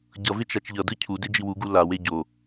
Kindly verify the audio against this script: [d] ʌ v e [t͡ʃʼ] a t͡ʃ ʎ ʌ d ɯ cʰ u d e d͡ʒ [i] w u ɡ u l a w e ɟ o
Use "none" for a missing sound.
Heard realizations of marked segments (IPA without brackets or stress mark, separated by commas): ɟ, t͡ʃ, i